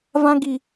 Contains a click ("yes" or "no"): no